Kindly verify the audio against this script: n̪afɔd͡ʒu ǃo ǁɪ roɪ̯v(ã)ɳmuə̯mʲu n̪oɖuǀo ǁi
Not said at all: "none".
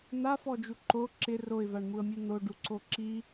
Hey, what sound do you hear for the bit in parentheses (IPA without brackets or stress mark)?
a